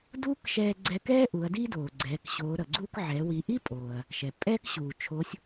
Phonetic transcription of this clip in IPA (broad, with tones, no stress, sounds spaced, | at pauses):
d uː˥ k ʃ ɛː˧ ɡ͡ǀ ɛ˧ k ɛː˥ ʔ u˩˧ ɐ̯ d i˥ d oː˩ ɡ͡ǀ ɛː˩˧ k ɕ oː˩˧ ɾ ʌ˩ ɡ͡ǀ uː˧ k ʕ ɛː˩˧ w i˩˧ ʔ i˥ pʼ oː˩ ɐ̯ | ʃ ɛ˩ pʼ ɛː˥ k ɕ uː˩ t͡ʃʰ o˧˥ sʲ